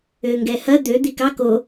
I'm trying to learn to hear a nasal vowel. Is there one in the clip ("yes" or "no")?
no